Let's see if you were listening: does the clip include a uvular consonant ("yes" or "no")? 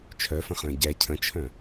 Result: yes